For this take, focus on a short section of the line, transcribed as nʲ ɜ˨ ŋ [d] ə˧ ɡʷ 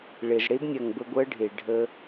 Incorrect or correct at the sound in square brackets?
incorrect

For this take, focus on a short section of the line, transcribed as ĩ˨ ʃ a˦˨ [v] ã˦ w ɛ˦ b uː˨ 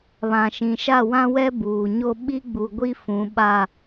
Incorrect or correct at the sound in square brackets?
incorrect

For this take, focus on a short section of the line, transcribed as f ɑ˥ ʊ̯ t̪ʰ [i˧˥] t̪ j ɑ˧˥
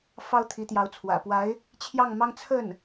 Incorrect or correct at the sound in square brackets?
correct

